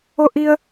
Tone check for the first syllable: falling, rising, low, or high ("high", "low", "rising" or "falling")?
high